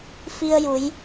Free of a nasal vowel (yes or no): yes